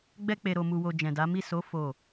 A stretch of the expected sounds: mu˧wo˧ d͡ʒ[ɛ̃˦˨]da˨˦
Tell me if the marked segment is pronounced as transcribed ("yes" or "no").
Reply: no